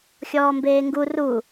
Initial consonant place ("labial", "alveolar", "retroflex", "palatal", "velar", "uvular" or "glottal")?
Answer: velar